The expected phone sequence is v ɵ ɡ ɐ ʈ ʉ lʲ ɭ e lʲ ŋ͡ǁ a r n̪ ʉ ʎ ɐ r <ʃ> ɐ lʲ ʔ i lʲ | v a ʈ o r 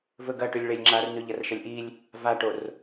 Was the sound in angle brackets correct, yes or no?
yes